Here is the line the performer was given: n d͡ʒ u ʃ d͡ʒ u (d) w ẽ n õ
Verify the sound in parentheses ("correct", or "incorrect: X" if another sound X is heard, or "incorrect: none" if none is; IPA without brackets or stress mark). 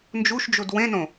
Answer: correct